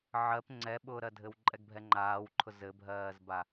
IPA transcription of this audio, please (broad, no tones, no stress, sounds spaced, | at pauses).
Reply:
ʕ ɜ p ŋ͡ǀ ɛ ɓ ʊː ɾ ɜ dʱ ɘ w ǃʼ ɛ ɡ bʱ ɛ ŋ͡ǃ aː w ǃʰ ʊ z ɘ bʱ ɜː z b a